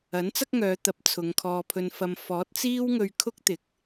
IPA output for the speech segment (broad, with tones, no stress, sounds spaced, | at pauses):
ɐ˨˥ n t͡s ɐ˥ k̚ ŋ œː˨˧ t̪ ɐ˨˥ p̚ t͡sʰ ʊ˨˧ ŋ kʰ ɔː˧ pʰ ɵ˧ n f ɐ˧ m f ɔː˨˥ t̚ t͡s iː˥ w ŋ ɵ˧ ɥ kʰ ʊ˥ k̚ t̪ ɪ˨˥ k̚